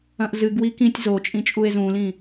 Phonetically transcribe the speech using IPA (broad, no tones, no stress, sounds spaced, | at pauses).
ɐ̃ ʔ z ɨ ɡ w i k ĩ tʲ z o t͡ʃʼ ĩ t͡ʃʼ u e̯ z ũ l ĩ